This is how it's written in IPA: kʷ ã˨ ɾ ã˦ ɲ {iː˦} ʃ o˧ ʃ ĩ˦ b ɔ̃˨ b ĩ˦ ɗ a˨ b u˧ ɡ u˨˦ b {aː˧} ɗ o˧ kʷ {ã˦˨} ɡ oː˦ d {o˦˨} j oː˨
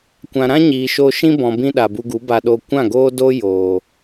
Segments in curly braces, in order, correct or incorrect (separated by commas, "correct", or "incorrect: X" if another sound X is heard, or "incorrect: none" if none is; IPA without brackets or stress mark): incorrect: iː˨, incorrect: a˧, correct, incorrect: o˦